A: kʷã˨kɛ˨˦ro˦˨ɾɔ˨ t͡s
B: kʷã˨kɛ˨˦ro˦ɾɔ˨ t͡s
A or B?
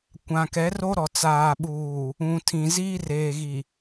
B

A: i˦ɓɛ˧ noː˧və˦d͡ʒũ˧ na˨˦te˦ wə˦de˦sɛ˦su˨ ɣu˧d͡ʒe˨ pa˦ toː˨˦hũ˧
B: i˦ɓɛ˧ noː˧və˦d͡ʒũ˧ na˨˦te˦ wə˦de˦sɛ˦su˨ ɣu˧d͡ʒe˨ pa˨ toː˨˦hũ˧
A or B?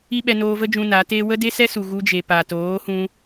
B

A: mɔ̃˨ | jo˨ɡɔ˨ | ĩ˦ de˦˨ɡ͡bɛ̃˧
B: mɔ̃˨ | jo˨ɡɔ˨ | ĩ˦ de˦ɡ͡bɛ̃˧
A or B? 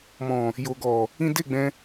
A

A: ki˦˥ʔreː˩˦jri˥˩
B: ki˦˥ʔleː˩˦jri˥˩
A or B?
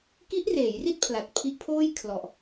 A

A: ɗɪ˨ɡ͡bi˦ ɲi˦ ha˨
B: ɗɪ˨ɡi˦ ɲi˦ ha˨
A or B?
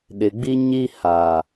A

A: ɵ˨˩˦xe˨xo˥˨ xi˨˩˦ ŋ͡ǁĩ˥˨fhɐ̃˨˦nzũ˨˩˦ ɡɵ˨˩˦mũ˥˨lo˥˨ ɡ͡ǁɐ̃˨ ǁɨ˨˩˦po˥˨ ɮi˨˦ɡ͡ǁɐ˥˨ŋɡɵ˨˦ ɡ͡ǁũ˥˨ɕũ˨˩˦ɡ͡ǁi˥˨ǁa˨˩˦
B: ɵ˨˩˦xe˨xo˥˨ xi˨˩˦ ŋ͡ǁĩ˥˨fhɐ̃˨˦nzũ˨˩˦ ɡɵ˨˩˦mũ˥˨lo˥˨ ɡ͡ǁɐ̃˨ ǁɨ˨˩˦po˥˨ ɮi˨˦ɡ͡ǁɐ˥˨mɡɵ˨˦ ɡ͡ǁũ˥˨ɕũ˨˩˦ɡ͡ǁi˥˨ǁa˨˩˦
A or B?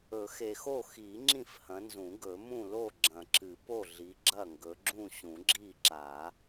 A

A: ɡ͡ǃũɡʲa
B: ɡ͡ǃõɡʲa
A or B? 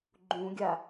A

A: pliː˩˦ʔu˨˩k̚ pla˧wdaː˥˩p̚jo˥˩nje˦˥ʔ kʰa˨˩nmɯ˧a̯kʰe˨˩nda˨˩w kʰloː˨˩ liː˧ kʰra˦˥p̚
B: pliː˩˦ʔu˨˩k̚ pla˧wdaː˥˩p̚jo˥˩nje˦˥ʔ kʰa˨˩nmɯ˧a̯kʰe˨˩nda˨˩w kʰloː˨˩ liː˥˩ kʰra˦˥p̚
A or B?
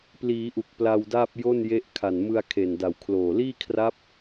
B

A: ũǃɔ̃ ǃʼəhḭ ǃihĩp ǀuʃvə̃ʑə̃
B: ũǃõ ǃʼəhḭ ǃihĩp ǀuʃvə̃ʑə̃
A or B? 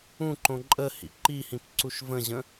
B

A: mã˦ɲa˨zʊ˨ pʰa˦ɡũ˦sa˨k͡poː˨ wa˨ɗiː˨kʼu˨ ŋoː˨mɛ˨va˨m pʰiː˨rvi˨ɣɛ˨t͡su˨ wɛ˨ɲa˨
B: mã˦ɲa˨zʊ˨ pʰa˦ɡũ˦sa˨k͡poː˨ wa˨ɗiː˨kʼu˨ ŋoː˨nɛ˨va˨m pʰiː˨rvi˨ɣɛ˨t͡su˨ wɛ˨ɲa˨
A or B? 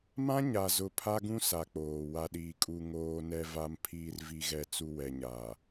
B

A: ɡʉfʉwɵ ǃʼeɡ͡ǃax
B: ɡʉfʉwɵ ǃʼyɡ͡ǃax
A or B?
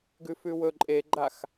A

